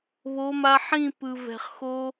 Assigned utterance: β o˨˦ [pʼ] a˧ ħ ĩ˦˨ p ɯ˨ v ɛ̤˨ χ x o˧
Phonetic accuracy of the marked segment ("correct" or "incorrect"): incorrect